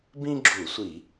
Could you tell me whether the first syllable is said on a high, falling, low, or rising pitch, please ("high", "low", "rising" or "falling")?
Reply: high